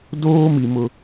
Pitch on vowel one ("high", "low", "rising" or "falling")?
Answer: high